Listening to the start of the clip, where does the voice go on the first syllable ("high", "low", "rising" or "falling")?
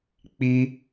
high